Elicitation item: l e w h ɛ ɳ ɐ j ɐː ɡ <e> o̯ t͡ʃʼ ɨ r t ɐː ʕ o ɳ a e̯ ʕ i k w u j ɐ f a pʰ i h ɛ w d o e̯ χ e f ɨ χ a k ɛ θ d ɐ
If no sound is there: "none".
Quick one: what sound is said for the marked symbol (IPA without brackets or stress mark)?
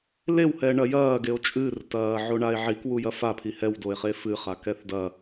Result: e